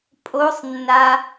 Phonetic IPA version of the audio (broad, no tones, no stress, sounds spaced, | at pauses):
pʼ o sˤ nː a